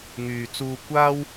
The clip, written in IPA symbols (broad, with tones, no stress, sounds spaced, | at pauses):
ŋ yː˨ t͡s uː˧ kʷ aː˥ w